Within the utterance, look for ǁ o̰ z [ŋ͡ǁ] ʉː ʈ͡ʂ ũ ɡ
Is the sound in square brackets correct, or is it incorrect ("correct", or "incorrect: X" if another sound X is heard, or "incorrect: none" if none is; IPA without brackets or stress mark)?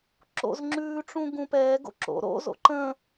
correct